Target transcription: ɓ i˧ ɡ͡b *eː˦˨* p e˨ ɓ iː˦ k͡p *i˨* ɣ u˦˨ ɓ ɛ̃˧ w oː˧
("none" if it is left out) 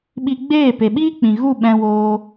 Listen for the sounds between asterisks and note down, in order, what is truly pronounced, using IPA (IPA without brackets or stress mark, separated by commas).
eː˦˨, ĩ˨